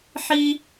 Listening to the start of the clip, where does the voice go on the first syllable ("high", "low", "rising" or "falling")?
high